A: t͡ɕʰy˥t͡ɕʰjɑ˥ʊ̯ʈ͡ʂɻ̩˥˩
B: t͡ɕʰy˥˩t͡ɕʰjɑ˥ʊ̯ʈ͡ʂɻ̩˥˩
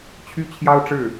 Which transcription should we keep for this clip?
A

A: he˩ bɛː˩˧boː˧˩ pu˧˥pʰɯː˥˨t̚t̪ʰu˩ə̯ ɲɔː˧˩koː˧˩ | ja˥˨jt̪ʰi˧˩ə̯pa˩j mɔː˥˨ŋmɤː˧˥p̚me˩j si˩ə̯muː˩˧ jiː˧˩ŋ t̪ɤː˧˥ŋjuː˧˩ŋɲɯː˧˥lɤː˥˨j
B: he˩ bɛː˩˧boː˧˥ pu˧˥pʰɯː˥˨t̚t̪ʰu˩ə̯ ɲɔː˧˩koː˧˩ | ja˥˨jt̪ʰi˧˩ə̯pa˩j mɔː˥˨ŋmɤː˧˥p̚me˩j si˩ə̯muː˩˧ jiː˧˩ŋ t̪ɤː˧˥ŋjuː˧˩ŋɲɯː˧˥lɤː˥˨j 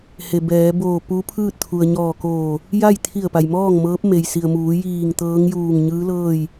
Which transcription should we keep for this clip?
A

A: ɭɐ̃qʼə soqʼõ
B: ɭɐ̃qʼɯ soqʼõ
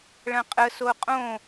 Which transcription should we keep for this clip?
A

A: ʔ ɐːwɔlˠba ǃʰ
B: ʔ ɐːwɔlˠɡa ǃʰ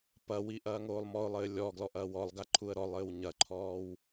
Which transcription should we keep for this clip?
B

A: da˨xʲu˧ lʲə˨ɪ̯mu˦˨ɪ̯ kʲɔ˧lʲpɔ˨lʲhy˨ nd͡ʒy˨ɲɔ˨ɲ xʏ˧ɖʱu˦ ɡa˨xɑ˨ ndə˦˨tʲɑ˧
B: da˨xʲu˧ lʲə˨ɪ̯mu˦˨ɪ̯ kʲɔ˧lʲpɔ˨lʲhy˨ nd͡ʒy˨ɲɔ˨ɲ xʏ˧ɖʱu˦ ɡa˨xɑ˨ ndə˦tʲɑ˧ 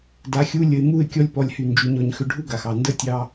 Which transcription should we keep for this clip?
A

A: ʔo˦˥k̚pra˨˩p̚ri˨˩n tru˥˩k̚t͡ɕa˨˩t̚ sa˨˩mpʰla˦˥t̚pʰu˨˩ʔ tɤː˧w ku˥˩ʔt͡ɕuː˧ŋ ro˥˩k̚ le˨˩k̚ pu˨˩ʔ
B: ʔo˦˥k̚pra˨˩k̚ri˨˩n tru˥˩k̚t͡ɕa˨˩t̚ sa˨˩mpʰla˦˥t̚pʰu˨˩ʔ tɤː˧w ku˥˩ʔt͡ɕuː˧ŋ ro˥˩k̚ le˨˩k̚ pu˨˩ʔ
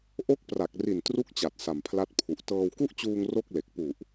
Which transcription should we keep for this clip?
B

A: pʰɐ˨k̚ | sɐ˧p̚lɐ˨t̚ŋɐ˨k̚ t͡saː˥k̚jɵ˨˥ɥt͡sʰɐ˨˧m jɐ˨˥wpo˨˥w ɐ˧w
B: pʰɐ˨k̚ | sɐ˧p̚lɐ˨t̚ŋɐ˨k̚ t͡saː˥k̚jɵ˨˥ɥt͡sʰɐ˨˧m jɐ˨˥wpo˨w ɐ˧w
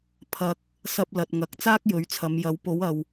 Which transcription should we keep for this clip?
A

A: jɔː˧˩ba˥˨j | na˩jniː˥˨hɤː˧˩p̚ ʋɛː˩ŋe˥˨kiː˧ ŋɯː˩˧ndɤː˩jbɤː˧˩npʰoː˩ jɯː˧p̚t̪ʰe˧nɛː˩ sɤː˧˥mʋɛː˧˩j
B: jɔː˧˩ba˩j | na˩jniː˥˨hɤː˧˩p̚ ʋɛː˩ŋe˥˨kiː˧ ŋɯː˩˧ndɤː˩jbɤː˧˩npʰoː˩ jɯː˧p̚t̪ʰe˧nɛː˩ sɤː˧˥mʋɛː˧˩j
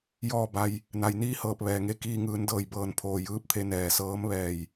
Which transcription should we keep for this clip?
B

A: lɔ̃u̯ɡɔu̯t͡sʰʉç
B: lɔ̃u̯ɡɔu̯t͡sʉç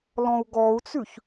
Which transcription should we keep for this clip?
B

